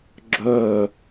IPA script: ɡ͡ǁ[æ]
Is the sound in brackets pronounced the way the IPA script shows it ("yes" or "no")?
no